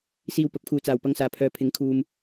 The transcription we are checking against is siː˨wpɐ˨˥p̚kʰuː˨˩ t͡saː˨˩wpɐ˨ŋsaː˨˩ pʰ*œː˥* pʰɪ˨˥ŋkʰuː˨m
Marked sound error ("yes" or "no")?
yes